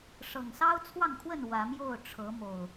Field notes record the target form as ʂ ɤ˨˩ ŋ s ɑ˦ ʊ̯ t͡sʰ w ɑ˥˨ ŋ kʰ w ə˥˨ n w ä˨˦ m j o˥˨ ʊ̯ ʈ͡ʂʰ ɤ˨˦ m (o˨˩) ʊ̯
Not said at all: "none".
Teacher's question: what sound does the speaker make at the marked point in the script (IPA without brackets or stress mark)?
o˨˩